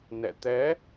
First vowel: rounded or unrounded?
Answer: unrounded